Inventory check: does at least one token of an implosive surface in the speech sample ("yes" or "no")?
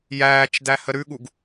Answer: yes